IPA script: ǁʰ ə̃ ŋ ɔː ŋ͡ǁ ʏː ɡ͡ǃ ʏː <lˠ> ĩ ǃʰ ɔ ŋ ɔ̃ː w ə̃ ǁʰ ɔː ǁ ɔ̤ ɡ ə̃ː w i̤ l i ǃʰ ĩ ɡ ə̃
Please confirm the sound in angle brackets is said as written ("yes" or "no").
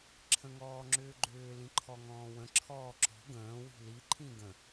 no